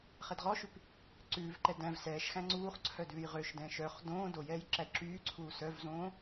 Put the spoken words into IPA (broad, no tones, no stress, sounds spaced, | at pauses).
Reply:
χ ɛ d ʁ ɔ ʃ ʉ p | ǀ ʉː v ǃ ɛ d æ̃ v s ɛː ʃ x æ̃ ŋ͡ǀ uː χ ǀʰ œ d ʉː j ʁ ø ʃ d ɛ̃ ʃ œ χ d õː d o j ɛː j ǁ æ d ǁ yː ǀʰ uː s œ v z õː